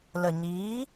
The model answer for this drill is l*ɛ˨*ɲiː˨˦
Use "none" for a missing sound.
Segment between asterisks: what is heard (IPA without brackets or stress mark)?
ə˨